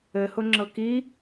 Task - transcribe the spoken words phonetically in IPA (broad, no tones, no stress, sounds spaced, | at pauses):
ɘ h ʊ ŋ͡ǁ ɤ k i